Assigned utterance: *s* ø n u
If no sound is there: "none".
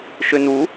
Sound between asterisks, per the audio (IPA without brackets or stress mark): ʃ